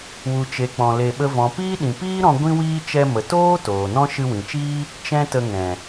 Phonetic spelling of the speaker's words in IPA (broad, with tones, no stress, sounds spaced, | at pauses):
w u˨ t͡ʃ e˨ k͡p ɔ̃˧ l e˧ ɓ ə˦ v ɔ̃˨ p iː˦ ɗ ĩ˨ p iː˦ ɾ ɔ̃˧ ɡʷ ĩ˦ w iː˦ t͡ʃ ɛ˧ m ə˨ t oː˦ t oː˨ n ɔ̃˦ ʃ ɨ˧ w ĩ˨ t͡ʃ iː˦ | t͡ʃ ɛ̃˦ t ə˧ ŋ ɛ̃˨